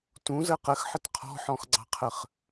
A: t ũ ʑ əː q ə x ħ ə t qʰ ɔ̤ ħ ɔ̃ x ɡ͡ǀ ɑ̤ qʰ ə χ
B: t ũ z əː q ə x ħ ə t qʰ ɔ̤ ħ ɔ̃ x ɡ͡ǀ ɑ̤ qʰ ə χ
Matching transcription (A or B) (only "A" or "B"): B